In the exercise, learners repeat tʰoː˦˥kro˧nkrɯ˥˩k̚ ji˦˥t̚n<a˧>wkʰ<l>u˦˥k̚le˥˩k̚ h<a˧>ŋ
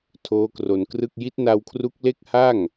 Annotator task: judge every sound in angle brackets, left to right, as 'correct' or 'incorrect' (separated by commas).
correct, incorrect, incorrect